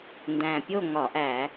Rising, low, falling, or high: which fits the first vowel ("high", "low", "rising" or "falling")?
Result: low